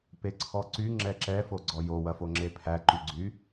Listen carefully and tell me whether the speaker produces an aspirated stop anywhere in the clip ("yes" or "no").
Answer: yes